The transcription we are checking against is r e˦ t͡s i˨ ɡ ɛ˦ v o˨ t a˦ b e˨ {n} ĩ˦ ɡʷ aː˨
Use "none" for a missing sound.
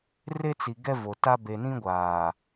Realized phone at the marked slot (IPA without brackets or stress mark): n